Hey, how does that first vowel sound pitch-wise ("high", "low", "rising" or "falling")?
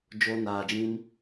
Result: high